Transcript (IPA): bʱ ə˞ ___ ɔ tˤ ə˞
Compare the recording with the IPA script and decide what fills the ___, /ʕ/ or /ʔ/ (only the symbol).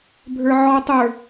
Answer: ʕ